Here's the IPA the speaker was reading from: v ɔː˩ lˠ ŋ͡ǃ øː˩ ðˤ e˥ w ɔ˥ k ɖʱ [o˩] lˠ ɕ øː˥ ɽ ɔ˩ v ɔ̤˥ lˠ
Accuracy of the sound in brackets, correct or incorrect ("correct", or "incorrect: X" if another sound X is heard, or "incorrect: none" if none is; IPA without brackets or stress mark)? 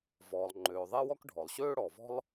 incorrect: ɔ˩